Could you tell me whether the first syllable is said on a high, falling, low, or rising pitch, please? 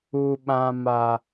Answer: low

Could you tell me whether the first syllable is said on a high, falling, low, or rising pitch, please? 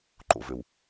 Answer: low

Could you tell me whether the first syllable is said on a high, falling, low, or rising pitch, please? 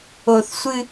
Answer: low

